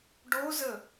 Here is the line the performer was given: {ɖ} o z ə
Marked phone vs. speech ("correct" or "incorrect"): correct